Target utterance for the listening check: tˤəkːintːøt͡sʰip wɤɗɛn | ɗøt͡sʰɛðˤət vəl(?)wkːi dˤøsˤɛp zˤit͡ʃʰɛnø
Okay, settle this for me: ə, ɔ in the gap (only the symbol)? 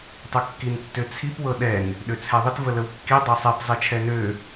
ə